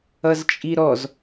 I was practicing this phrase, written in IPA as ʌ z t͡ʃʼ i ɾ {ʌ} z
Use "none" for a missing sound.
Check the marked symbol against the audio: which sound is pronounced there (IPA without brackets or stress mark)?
ɔ